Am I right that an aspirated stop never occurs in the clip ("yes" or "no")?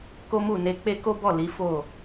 yes